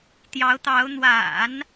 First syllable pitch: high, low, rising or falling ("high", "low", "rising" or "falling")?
rising